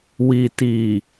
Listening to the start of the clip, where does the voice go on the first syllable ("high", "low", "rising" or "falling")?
low